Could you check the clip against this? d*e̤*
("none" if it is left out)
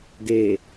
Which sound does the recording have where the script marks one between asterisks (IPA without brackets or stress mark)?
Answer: e